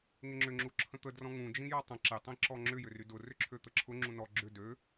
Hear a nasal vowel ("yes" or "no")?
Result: yes